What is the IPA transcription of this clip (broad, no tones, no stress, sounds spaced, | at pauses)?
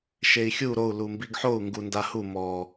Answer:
ʃ e i̯ xʲ u ɾ o u̯ l u m b i ɡ ħ o u̯ ŋ ɡ u n d a h u m ɔ